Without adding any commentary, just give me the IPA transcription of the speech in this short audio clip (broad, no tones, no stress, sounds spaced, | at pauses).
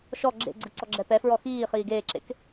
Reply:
ʃ ɔ ɡ͡ǁ ḛ ɡ͡ǀ ɯ ǀ ɔ ɡ͡ǁ ɛ p ɛ f ɹ ɔ x iː χ iː ɡ eː ǁ ḛ k